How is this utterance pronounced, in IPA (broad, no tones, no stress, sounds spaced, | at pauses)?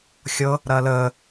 xʲ ɤ | ɾ ɐː l əː